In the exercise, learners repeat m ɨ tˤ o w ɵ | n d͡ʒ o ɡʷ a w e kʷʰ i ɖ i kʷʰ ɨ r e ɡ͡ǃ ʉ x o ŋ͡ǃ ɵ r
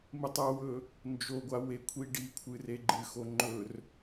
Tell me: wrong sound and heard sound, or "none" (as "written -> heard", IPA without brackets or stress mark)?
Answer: ʉ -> ɨ